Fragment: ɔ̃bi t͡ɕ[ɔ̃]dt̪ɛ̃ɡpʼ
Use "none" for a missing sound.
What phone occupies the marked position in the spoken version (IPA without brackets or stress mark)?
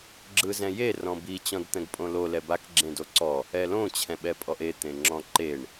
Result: ɔ̃